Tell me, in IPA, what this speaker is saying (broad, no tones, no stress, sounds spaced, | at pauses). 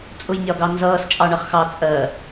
t͡sʼ ʊ j nʲ ɒ ɡ ɑ n z ʌː s t͡ʃʼ ɑ ɳ ʌ χ x ɑ t͡sʼ ɜ